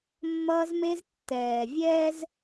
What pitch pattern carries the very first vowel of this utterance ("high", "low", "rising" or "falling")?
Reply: high